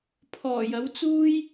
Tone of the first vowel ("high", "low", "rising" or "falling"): low